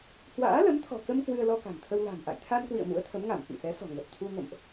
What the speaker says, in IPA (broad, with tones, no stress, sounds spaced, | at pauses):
h w a̰ː˧˥ l ə˨˦ m t̪ʰ ɔ̤˨˩ k ə˧ m k w ɨ˧ ə̯ l ɔ˧ k a̤˨˩ n t̪ʰ ə˧ w l a̤˨˩ m ʔ a̰˧˨ j t̪ʰ a˧ n k w ḭ˧˨ ə̯ m ṵ˧˥ ə̯ t̪ʰ ə˨˦ m ŋ a˧˩ m f ḭ˧˨ f ɛ˨˦ s ɔ̤˨˩ ŋ ə˨˩ t̚ t̪ʰ u˧ ŋ ə̰˧˨ m ʔ